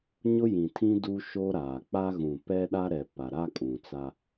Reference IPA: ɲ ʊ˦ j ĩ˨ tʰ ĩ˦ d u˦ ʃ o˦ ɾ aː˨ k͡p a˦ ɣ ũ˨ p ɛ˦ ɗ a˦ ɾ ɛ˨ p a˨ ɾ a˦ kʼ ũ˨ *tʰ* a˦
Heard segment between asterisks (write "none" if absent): t͡s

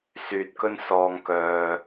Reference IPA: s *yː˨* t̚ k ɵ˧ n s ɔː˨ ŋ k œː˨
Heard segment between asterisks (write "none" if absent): yː˨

